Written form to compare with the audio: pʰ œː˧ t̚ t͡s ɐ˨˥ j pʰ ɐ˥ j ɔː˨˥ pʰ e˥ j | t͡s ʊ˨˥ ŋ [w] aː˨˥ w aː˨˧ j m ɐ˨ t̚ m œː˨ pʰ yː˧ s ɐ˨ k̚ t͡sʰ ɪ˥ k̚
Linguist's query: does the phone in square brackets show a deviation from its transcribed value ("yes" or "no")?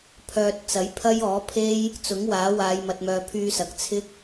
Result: no